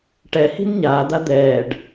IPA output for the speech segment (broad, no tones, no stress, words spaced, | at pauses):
ʈɛhi̤n ɲaːd̪a d̪ɛːɖ